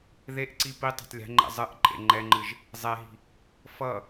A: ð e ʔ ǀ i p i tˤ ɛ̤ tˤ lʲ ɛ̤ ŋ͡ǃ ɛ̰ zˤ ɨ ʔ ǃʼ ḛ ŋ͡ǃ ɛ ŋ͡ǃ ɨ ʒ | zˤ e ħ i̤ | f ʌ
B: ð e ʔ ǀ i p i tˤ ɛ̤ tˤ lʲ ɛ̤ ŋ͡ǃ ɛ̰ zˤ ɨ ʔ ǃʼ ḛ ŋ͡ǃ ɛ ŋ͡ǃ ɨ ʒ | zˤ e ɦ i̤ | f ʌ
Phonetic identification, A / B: B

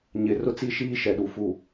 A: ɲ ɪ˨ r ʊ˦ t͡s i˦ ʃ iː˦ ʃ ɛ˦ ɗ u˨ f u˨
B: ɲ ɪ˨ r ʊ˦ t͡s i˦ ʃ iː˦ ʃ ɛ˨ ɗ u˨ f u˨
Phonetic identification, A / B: B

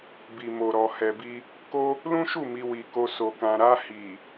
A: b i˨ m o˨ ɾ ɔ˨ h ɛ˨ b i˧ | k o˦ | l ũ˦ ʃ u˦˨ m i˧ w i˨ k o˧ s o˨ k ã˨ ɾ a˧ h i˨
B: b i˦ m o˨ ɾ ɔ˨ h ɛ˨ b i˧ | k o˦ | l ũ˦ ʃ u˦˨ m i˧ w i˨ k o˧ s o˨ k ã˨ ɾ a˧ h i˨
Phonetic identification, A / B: A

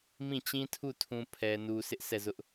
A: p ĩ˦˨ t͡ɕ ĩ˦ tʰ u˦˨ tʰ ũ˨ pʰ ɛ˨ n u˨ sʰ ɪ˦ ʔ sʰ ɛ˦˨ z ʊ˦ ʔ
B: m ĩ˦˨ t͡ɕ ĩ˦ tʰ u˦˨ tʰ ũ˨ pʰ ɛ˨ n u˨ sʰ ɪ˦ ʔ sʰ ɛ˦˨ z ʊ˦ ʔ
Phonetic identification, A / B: B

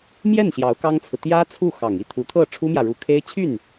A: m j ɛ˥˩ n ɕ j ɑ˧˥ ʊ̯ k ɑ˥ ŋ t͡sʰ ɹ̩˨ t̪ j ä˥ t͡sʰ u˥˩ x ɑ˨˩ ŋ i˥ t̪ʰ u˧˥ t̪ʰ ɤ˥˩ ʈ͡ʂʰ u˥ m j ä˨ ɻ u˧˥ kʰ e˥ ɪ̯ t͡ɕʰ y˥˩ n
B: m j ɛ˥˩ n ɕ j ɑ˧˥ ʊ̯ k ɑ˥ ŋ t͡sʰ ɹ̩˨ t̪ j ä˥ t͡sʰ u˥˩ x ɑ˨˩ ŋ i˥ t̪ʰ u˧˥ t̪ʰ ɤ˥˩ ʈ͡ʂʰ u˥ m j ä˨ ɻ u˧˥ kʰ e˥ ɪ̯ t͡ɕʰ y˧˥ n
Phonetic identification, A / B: A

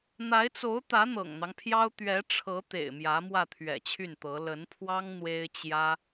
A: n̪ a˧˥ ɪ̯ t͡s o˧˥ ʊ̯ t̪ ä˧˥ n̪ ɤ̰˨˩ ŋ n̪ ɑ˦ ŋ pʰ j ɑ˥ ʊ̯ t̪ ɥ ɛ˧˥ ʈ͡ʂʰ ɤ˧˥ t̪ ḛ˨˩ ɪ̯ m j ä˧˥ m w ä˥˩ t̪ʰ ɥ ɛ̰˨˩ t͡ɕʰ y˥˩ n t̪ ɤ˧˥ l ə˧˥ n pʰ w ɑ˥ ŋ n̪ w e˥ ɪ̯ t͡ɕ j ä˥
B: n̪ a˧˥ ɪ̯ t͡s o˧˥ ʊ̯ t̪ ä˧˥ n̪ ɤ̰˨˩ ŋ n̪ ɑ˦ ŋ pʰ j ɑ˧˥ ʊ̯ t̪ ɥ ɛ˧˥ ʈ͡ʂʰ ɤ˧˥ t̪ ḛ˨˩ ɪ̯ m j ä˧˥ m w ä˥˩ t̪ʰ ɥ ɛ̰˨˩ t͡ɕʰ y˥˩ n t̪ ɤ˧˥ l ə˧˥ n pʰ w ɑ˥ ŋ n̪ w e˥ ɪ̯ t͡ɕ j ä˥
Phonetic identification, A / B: A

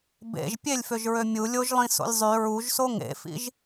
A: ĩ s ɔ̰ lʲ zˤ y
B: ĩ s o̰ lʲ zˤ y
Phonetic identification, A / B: B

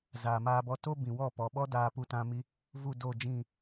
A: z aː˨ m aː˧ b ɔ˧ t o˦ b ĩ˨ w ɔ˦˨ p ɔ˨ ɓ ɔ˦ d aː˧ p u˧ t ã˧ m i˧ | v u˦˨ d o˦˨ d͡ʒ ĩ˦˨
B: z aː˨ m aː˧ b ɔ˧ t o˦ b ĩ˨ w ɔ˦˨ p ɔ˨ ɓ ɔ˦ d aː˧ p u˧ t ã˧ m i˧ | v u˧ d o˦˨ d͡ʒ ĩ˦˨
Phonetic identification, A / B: A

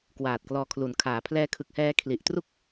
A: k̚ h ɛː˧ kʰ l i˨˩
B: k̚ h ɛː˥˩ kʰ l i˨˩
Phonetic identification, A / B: A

